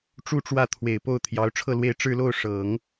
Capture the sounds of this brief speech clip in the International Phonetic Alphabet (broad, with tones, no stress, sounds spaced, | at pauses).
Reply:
ʈ͡ʂ u˥˧ ʈ͡ʂ w ä˥˩ t̪ʰ w e˨˩ ɪ̯ p o˥˩ ʊ̯ t̪ʰ j ɑ˧˥ ʊ̯ ʈ͡ʂʰ ɤ˥˧ l w e˥˧ ɪ̯ ʈ͡ʂ ɻ̩˥˧ l o˥˩ ʊ̯ ʂ ɤ˨˩˦ ŋ